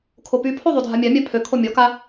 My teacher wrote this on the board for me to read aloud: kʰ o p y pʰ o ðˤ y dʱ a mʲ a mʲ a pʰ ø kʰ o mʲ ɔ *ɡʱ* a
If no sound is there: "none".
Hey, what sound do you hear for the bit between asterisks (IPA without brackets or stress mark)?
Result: k